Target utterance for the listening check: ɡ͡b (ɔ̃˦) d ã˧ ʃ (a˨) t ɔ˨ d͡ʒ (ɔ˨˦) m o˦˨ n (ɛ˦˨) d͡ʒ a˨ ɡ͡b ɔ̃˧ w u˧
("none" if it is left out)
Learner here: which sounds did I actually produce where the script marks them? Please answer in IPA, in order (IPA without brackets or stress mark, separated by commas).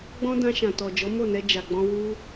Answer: ɔ̃˦, ã˨, ɔ˨˦, ɛ˧